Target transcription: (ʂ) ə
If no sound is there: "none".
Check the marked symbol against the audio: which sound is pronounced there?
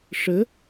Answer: ʂ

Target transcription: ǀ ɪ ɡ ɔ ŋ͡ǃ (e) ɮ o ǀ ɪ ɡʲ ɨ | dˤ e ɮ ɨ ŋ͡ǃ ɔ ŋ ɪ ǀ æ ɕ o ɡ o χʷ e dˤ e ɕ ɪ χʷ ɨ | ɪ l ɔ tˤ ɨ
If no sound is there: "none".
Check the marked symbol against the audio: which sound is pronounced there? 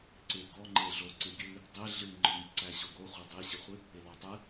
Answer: e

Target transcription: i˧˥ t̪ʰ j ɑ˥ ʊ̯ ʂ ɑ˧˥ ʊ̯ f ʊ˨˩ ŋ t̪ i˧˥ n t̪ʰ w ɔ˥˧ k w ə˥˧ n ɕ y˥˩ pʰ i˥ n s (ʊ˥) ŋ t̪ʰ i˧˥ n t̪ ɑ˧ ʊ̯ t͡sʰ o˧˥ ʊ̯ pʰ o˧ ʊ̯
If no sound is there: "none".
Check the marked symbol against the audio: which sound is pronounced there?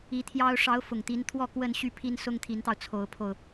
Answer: ʊ˥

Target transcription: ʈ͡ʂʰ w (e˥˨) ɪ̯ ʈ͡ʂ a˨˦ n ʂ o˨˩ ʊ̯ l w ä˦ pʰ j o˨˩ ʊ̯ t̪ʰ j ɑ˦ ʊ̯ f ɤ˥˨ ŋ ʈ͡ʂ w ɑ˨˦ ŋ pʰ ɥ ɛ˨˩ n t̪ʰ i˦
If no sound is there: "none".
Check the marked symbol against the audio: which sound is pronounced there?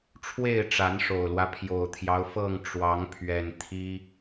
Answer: e˥˨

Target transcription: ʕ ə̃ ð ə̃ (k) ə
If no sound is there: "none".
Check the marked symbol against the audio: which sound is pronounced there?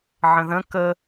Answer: k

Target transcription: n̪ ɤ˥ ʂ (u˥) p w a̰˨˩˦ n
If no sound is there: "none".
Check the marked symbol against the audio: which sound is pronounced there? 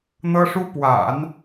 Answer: u˥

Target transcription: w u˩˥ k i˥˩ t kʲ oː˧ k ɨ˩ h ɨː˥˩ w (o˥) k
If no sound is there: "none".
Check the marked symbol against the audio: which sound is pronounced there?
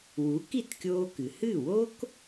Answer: o˥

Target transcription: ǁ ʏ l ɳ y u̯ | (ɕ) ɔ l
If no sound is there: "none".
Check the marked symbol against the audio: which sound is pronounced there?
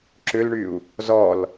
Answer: z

